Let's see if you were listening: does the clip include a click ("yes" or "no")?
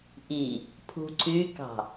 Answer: yes